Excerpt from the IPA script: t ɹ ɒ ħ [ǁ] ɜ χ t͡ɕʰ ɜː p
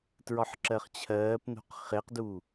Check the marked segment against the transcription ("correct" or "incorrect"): correct